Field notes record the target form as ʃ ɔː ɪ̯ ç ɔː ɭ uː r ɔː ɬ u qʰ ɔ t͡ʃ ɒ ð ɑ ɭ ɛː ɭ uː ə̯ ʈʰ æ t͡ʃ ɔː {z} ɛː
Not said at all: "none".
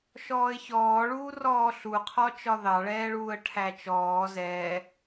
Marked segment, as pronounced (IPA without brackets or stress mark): z